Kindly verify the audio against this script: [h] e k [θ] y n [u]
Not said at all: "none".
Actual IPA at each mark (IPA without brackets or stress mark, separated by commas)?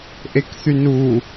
ʔ, θ, u